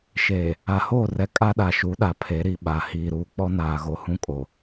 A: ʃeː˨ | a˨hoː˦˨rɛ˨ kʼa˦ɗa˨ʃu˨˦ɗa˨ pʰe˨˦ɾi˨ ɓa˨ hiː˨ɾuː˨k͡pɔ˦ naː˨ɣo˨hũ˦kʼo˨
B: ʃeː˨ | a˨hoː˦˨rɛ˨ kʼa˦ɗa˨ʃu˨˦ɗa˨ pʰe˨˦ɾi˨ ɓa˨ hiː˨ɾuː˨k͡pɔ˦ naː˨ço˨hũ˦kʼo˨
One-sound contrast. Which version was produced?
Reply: A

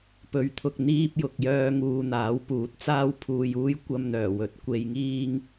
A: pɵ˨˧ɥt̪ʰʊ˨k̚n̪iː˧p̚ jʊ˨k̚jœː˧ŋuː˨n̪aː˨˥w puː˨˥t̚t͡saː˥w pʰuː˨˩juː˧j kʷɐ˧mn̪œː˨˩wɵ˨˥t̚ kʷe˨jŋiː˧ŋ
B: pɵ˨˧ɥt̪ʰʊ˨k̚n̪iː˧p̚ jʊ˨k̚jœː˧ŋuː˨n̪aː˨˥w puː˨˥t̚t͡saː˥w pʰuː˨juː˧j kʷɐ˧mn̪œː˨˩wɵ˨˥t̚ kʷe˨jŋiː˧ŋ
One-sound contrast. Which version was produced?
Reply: B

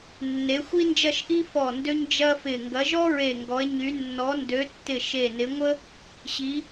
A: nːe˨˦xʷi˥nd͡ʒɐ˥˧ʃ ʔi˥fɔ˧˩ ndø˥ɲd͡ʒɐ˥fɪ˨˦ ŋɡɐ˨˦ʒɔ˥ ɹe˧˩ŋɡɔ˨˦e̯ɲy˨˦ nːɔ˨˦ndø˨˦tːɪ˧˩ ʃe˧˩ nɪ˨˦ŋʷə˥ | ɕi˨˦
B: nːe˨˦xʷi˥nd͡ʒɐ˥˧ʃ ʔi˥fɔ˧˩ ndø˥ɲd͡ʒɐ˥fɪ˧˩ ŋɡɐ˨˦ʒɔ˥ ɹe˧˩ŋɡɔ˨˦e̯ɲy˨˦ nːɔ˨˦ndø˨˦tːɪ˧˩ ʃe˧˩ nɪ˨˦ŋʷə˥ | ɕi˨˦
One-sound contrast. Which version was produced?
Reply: B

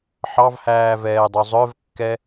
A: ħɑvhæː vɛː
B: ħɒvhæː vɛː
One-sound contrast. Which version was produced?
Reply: A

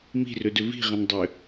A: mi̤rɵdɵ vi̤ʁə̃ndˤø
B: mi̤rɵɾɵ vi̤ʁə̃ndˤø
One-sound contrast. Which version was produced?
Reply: A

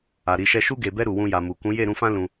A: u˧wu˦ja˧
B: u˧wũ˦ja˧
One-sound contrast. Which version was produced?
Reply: B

